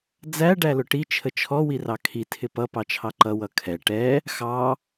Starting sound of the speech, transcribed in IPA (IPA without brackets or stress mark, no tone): d͡z